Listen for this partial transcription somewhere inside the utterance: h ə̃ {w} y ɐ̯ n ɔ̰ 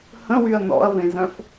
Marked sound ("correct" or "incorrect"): correct